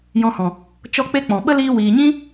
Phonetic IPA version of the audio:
j ɔ̃˧ h ɔ̃˨ | t͡ʃ ɔ˦ k͡p e˦ k͡p ɔ̃˨ ɓ ə˦ l iː˧ w iː˨ ɲ ĩ˦

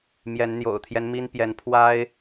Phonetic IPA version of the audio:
m j ɛ˨˦ n n̪ j o̰˨˩ ʊ̯ t̪ʰ j ɛ˦ n m i˦ n p j ɛ˨˦ n pʰ w a˦ ɪ̯

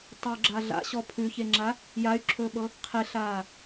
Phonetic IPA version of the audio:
tˤ u ɡ͡ǁ a ɮ a̰ ɕ ɔ pʰ ʉ ç e ŋ͡ǁ a | j a y̯ ǁʰ ɵː ɓ ɤ | qʰ e ɬ aː

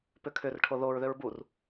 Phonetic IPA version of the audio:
p ʏ kʰ ʏ r ʈʰ o ð o ɹ ð ø ɹ b u r

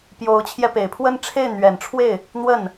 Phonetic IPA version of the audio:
p j o˧˥ ʊ̯ t͡ɕʰ j ɛ˧ p e˨˩ ɪ̯ pʰ w ə˥˧ n ʈ͡ʂʰ e˥˩ ɪ̯ n̪ ɥ ɛ˨˩ n ʈ͡ʂʰ w e˥˩ ɪ̯ | n̪ w ə˥˩ n

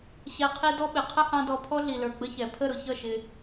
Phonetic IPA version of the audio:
ɕ ɛ˧ qʰ i˦ d ɔ˦ ɓ ɪ˨ qʰ ə˦ h ɑ̃˧ d ɔ˧ pʰ ɔ˦ ɮ i˨ l ə˞˨ ɡ͡b ə˦ ç ɛ˨ pʰ ə˦˨ ɾ ʊ˨ ç ʌ˦˨ ʃ ɪ˧

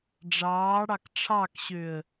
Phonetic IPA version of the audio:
ɖ͡ʐ ɑː ɽ ɑ k ʈ͡ʂʰ ɑ k ɕ ø ə̯

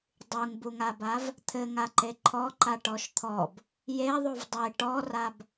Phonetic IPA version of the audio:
dˤ u ŋ b u ŋ a b a v | t̪ʰ ɘ ŋ a ǃ e ǃʰ ɔ ǃ a ʈ ɔ ʃ t̪ʰ ɔ b | j e ðˤ u v dˤ e ʈ ɔ r a b

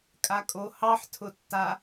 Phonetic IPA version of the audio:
kʼ a kʼ o h ɑ ħ tʰ ʊ tː a

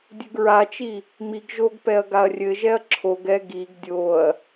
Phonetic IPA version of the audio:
dʲ ɘ ɡ ɹ a t͡ʃ i | m i ɡ ʒ o ɡ p ɛ ɐ̯ ɡ a ɐ̯ rʲ ɘ ʒ ɛ ɐ̯ ǁʰ o ɡ ɛ ɡ i ɡ dʲ o ɐ̯

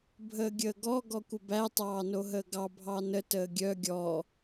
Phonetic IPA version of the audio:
bʱ əː ɡʲ əː ɡ ɔ ɡ ɔ kʷ ə b æ tˤ ɑː n o ɦ əː ɡ ɑ bʱ ɑ n ə t əː ɡʲ œ ɡʲ ɔ

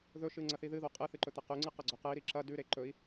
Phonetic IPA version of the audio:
ð ɵ ʃ ɨ ŋ͡ǀ ɐ θ i ð ɨ ð o qʼ ɨ θ ɨ ǃ ɵ t̪ ɐ q ʉ ŋ͡ǀ ɨ q ɐ ɡ͡ǀ ɵ q ɨ i̯ ɾ i ǁ ɐ d ʉ ɾ e ǃ ɵ i̯

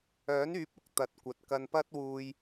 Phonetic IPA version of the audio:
œː˨˥ n yː˨˥ p̚ ʊ˨ k̚ t̪ ɐ˨˥ t̚ kʷ ɐ˨ t̚ k ɐ˧ n p ɐ˥ t̚ w uː˧ j

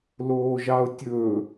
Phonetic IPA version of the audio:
l oː ʒ ɑ ʊ̯ tʲ ɵ

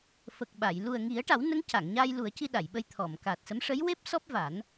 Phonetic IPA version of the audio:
f ə˨˩ k̚ ɓ a˨˩˨ j l u˨˩ ə̯ ŋ i˨˩˦ ə̯ ʈ a˨˩˦ w n ə˧˥ ŋ c a˨˩˨ ŋ ɲ aː˧ j l u˨˩˦ ə̯ c i˧ ɗ a˨˩˨ j ɓ ə˧ j t̪ʰ ɔ˨˩˨ m k aː˨˩ t̚ s ə˧˥ m ʂ ə˧˥ j w e˦˥ p̚ s ɔ˦˥ p̚ v a˨˩˦ n

